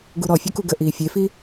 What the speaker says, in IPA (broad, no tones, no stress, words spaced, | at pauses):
ɡuɾɔ fʲokuɡə ʔiːfʲefi